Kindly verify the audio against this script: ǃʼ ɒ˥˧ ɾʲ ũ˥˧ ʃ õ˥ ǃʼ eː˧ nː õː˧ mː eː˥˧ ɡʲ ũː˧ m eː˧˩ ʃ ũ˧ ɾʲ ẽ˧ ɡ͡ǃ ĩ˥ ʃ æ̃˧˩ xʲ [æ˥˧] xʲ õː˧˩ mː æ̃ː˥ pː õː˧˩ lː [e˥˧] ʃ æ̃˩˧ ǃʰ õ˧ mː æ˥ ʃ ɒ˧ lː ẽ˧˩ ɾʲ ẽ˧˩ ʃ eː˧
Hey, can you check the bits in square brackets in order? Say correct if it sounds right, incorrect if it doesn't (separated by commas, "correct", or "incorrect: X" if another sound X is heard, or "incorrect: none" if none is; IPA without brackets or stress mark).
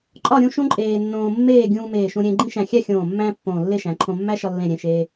correct, correct